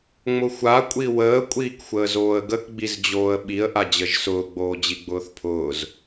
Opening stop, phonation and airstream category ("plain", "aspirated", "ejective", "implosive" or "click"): ejective